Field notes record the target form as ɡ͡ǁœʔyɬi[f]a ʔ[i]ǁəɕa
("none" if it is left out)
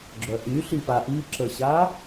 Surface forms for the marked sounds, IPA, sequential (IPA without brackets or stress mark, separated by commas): p, i